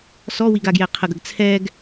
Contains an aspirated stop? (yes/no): yes